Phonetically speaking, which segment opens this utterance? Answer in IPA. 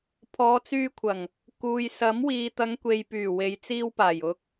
pʰ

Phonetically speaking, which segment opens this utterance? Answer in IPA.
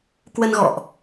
k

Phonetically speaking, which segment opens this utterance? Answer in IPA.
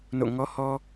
n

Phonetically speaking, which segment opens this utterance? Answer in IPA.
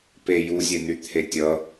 p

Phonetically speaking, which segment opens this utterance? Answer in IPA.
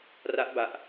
r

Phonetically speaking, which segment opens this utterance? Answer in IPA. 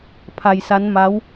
pʰ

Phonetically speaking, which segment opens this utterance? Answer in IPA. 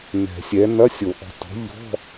n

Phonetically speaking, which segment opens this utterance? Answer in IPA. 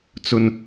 t͡s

